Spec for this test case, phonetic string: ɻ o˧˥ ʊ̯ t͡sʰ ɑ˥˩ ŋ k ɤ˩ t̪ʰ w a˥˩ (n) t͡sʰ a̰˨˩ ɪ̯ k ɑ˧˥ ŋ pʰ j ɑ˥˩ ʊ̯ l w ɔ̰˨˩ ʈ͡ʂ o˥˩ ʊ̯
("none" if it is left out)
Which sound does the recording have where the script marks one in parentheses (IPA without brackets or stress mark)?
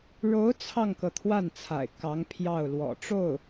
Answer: n